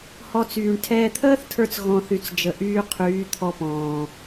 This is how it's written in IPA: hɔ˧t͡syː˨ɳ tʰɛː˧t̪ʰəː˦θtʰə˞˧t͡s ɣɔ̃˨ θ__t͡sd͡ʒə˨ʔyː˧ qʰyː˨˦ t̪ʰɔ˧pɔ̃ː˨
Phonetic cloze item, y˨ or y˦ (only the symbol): y˨